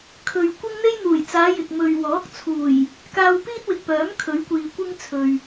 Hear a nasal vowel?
no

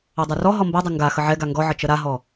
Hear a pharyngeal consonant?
yes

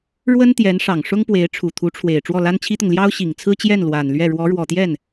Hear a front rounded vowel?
no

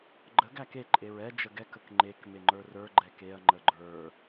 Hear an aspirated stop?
no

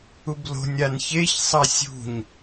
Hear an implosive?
no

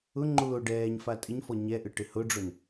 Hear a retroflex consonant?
yes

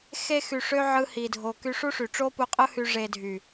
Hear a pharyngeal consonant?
yes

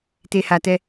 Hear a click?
no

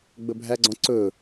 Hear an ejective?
no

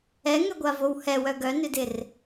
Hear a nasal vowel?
no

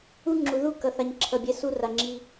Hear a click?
yes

